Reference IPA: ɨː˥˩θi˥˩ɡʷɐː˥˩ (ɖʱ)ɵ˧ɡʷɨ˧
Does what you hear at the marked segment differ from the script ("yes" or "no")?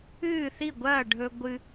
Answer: no